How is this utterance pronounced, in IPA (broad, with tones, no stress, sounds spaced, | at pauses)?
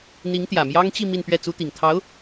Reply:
n̪ i˧˥ ŋ t̪ j ä˨˩ m j ɑ˥ ŋ t͡ɕ i˥˧ m i˥˧ n p ɥ ɛ˥˩ t͡s u˥ t̪ i˨˩ ŋ t̪ʰ ɑ˧˥ ʊ̯